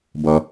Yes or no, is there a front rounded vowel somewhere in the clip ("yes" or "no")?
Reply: no